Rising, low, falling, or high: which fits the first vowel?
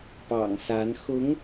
low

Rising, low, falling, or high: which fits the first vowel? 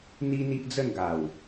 high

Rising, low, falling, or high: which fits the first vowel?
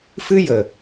high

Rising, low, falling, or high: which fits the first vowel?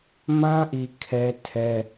high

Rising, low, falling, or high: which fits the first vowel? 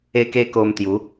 high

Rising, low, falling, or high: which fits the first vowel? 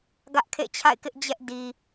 high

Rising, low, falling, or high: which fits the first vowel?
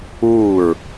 falling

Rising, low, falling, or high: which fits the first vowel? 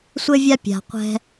high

